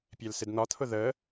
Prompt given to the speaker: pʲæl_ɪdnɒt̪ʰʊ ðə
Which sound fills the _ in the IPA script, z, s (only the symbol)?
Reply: s